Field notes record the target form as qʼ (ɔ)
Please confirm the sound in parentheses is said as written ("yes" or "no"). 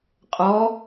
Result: yes